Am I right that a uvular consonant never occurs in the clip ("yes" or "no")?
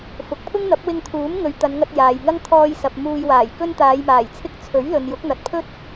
yes